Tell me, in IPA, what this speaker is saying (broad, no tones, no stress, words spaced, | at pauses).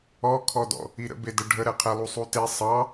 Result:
ɔkʰɔdɔ̰ | iɾə̰bedə ɖʱəɾɛqʰɛlˠu sˤute sˤɑ